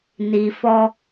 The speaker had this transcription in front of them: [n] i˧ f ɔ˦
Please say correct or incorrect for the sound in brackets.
correct